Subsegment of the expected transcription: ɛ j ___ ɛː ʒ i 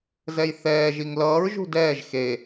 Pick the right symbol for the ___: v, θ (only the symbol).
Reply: θ